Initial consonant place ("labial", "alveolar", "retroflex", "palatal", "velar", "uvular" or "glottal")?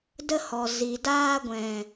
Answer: alveolar